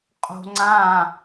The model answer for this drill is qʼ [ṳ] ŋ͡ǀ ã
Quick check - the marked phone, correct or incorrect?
incorrect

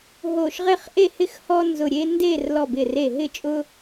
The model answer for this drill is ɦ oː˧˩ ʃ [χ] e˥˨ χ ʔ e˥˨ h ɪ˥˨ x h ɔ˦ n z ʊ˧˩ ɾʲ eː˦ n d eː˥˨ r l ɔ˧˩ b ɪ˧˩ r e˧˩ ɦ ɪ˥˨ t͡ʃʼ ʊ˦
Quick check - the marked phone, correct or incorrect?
incorrect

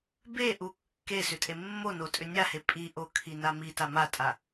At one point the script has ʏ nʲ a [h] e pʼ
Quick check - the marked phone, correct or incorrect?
correct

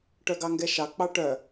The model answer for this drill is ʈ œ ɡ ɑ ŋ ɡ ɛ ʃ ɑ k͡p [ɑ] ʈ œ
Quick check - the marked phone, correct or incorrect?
correct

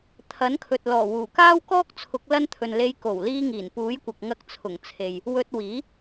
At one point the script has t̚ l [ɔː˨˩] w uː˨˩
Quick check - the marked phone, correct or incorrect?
correct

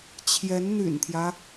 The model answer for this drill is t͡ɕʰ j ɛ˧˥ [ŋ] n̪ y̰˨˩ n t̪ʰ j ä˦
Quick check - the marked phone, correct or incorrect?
incorrect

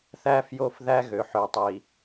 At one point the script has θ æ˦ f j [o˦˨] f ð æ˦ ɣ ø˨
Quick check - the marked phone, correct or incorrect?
correct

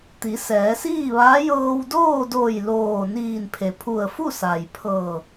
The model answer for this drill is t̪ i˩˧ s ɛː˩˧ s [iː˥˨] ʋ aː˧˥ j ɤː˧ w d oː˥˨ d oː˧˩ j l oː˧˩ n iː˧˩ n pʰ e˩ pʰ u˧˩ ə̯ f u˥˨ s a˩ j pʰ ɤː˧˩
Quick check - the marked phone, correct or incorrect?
correct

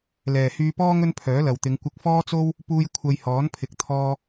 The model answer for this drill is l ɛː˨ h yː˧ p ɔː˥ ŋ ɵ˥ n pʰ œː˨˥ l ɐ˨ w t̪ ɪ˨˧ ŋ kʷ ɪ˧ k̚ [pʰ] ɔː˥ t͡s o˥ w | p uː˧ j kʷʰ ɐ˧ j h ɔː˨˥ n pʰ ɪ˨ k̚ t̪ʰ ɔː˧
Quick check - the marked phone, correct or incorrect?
incorrect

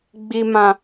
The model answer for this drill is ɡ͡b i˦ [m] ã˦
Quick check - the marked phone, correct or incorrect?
correct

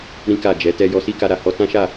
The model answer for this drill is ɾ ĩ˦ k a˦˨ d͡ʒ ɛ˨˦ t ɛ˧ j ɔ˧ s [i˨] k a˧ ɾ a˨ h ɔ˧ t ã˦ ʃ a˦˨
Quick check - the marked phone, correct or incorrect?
incorrect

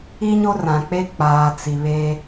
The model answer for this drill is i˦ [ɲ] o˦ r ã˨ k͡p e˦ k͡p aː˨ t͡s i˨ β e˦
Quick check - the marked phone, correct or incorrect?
correct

